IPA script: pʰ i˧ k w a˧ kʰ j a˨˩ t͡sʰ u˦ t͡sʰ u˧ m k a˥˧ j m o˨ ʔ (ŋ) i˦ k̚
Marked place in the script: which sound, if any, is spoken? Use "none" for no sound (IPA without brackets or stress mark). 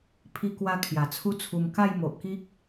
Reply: k